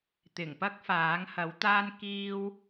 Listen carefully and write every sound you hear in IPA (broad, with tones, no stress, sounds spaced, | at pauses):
t̪ ɪ˨˩ ŋ p ɐ˥ k̚ f aː˨˥ ŋ h ɐ˨˥ w t̪ aː˥ n k iː˥ w